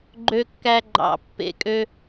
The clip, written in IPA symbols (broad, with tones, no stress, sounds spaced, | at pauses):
ɡ͡ǃ ø˧ kː æ˧ ɡ͡ǃ ɑ̰˨˩˦ pː ḛ˨˩˦ kʼ ø˧